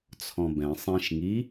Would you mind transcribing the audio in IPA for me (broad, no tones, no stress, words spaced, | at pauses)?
t͡sʰɔ̃bɛ̃ sˤẽʃŋi